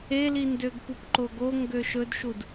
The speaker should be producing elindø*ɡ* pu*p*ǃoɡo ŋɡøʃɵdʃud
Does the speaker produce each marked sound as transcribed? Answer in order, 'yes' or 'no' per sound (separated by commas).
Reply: yes, yes